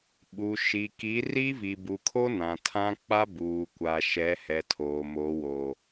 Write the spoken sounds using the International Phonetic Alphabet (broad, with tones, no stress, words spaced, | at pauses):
ɓu˨ʃi˨ ki˨˦ri˦vi˨ bu˨kʰo˦ nã˨tʰã˦ k͡pa˦buː˨kʷa˨ ʃɛ˨˦hɛ˨ tʰoː˨mo˨˦wo˨